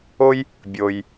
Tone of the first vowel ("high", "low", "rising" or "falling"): high